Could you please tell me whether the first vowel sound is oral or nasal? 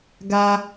oral